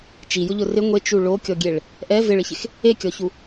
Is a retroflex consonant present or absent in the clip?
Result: present